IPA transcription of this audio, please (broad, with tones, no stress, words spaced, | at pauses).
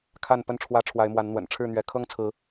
kʰa˥˨n pə˥˨nʈ͡ʂʰwä˦ ʈ͡ʂʰwa˨˦ɪ̯mwa˨˦nn̪wə̰˨˩n ʈ͡ʂʰɻ̩˥˨n̪ɥɛ˨˦ kʰɤ˦ŋt͡sʰɹ̩˨˦